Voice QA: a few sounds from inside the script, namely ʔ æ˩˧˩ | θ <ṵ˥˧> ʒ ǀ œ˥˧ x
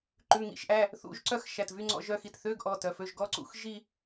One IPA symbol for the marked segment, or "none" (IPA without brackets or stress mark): ṵ˧˥˧